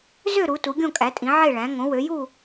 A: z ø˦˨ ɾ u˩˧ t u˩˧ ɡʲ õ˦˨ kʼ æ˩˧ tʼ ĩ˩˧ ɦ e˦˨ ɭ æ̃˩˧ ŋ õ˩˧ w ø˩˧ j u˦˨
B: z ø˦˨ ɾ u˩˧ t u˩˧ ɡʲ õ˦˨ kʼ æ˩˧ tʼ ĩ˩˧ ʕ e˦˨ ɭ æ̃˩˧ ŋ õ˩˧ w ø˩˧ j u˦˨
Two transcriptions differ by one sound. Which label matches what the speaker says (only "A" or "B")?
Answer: B